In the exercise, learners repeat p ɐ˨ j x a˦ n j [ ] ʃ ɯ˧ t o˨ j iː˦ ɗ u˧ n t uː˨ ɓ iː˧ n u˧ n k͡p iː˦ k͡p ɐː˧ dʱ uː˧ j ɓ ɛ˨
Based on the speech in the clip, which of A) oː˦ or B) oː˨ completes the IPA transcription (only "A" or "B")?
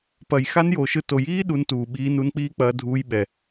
B